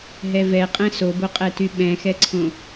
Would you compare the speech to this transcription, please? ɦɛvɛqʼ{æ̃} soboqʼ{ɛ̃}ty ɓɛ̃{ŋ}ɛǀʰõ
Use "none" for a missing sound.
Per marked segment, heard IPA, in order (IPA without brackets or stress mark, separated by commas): ɛ̃, ɛ, x